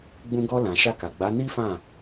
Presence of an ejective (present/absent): absent